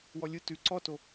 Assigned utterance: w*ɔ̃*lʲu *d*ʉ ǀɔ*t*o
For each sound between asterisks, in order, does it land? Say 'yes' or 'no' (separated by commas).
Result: no, no, yes